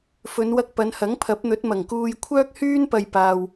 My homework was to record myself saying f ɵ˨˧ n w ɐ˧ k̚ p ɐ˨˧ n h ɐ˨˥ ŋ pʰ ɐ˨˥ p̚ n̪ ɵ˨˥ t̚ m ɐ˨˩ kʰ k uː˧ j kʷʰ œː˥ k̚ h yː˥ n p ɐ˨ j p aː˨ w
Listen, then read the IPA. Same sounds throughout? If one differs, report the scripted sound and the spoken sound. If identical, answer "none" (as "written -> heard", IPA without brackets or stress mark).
kʰ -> ŋ